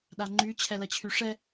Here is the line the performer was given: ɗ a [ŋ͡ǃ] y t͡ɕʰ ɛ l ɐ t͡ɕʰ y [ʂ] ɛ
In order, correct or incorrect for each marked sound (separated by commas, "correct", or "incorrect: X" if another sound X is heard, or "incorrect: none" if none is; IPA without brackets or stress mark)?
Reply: correct, correct